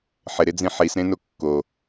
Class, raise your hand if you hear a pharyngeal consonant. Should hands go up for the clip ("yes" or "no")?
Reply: yes